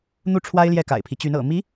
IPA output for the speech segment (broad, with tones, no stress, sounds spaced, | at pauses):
n̪ u˥˩ ʈ͡ʂʰ w a˥ ɪ̯ l j ɛ˥˩ k a̰˨˩ ɪ̯ pʰ i˦ t͡ɕ y˧˥ n ɤ̰˨˩ m i˧˥